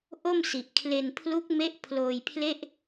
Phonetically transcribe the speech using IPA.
ʔ o˥˩ m s i˨˩ ʔ kʰ l e˧ n pʰ l u˦˥ k̚ m e˦˥ ʔ pʰ l oː˧ j pʰ l e˥˩ ʔ

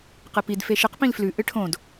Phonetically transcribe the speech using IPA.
q ɨ p i d f e ʃ ɨ q p ĩ l f l ʉ ʔ ɨ ʈʰ õ d

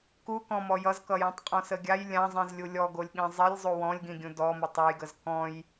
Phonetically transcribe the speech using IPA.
k u k ɔ̃ m ɔ j ʌ z k ʌ j ĩ tˤ qʼ ɔ̃ s ə ɡʲ a j lʲ ã zˤ ĩ z lʲ u lʲ ɔ ɡ o lʲ ɠ ĩ zˤ i lʲ zˤ u w ɔ̃ lʲ ɡ ĩ ɡʲ ũ d ɔ m ə tˤ ʌ j ɡ ə z k ɔ̃ j

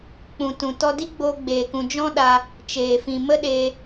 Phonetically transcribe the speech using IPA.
k͡p ũ˨ t ũ˨ t ɔ˧ d i˦ ɡ͡b oː˧ ɡ͡b eː˨ k ũ˨ d͡ʒ ɔ̃˦ ɗ a˧ | t͡ʃ eː˨ f ĩ˨ m ə˦ ɗ eː˧

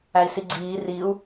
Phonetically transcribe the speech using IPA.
æ i̯ s i ɡ͡ǀ iː r i u̯

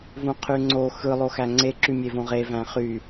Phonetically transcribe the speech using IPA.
v ũ qʰ y ŋ͡ǀ o x ɯ lˠ o x æ ŋ͡ǀ e ǁ y mʲ e v õ ʁ e v æ̃ χ y

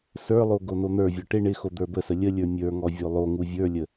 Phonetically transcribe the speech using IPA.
s ə˞ lˠ o ɡ o n o n̪ ə˞ vʲ ɔ ʈ ɪ ɳ ɪ x o d̪ ə˞ b ə s ə lʲ ə lʲ ə˞ mʲ ə˞ ŋ ɔ vʲ o lˠ o ŋ u vʲ ə˞ lʲ ə

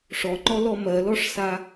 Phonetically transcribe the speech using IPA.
ʂ ɔ ŋ͡ǃ ɔ l ɔ m ɜ l ɔ ʂ s a

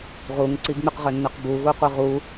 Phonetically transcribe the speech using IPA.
ʁ u ŋ ǀ i ɡ ŋ͡m y q ʁ ø nː ø q b u ɣ u qʷ ɯ ʁ u

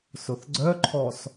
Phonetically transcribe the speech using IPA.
s ʊ θ ɡ͡ǀ œ ǃʰ ɔ s

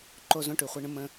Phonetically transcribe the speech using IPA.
ǃ o˦ z õ˦ ʈ ʉ˨ χʷ ɛ˦ ɳ ə̃˦ m ə̃˦

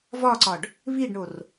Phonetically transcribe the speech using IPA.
v ɒ ǀ ɒ ɖ | β i ɖ ɳ o r

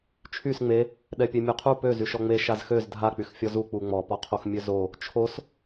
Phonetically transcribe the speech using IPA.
t͡ʃʰ y s ŋ͡m e | ɗ ɛ pʲ e mʲ o qʰ u p ø z y ʃ ɔ ŋ͡m e ʃ a z x ø z dʱ a k͡p y x fʲ ɔ z u k͡p u ŋ͡m ɔ p ɔ qʰ o x mʲ ø z o | t͡ʃʰ o s

